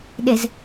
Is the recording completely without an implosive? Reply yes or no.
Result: no